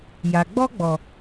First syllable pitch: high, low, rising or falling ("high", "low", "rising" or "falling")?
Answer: low